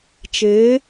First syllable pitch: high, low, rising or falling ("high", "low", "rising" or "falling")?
rising